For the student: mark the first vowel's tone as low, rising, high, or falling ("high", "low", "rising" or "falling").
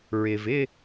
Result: low